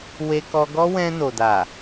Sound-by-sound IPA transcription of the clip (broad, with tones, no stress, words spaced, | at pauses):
we˧kɔ˧ɡɔ˦ wɛ̃˧no˨da˨